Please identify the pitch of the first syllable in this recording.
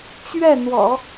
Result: falling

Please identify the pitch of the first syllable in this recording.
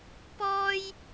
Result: high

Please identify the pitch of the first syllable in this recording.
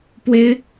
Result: high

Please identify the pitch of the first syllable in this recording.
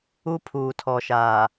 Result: high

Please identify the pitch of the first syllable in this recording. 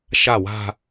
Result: falling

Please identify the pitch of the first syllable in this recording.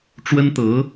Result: high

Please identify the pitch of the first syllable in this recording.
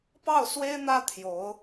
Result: falling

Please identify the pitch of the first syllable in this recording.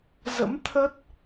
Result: rising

